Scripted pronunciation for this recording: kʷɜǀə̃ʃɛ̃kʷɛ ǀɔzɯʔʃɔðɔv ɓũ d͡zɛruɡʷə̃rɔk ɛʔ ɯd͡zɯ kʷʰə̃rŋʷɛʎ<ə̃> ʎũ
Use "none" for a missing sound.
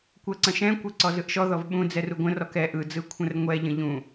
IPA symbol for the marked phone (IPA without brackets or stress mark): ə̃